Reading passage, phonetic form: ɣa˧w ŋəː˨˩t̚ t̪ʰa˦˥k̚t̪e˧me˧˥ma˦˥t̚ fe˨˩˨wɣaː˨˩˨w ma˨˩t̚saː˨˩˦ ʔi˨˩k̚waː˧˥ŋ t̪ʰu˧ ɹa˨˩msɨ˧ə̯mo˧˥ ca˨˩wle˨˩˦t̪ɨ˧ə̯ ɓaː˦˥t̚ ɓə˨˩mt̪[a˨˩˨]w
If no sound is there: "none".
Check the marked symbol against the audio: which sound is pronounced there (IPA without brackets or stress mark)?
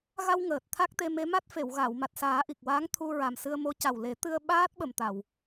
a˨˩˨